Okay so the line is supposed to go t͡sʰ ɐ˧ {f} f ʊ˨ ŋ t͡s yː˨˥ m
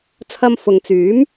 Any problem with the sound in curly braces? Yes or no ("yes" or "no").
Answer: yes